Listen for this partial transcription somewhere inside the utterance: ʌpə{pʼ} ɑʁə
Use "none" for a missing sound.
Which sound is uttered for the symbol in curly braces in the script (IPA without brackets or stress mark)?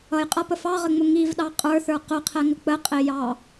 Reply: f